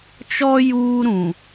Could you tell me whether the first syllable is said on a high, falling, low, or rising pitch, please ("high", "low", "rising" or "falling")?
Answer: high